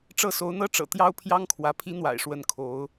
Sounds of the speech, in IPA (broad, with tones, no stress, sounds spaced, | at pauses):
ʈ͡ʂ ɤ˥˩ s o˧˥ ʊ̯ n̪ ɤ˥ ʈ͡ʂ ɤ̰˨˩ t̪ j ɑ˥ ʊ̯ pʰ j ɑ˥ ŋ kʰ w ä˧˥ pʰ i˧˥ n̪ w a̰˨˩ ɪ̯ ʂ w ə˧˥ n kʰ o˧˥ ʊ̯